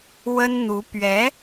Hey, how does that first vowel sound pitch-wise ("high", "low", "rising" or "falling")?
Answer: high